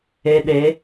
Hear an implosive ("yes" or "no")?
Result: yes